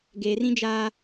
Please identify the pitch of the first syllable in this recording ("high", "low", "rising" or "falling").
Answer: low